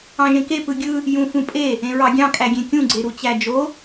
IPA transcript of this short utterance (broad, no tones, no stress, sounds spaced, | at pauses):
ɑ̃ ʒ ẽ k e p ɯ ɡʲ ɯ | j ũ f ũ pʼ e | ẽ ɹ ɑ ɡʲ ɑ̃ kʼ æ ɡʲ ẽ kʲ ũ ɡ͡ǀ e ɾ u t͡ɕ æ d͡ʒ o